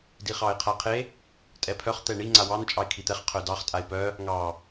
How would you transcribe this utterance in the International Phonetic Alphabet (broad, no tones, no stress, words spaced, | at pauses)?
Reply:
diχɑɪ̯qʰaqʰe | tʼɛpʰœχ t̪ɛɳi ŋ͡ǀawɑn t͡ʃʼɑɪ̯kʰit̪ɛχ qʰœdɑχ tʼaɪ̯pœ | ŋɑ